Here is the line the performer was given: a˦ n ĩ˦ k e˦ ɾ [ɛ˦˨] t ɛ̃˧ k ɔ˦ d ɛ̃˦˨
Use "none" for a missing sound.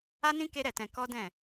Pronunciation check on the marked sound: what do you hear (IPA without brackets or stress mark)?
ɛ˦˨